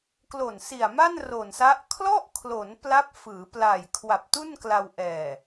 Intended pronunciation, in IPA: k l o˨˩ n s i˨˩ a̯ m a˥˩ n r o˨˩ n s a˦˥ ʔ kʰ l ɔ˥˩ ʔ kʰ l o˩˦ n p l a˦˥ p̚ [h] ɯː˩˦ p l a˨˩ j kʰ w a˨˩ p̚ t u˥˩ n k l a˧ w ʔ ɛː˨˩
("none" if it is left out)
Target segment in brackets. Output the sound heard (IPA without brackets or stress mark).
f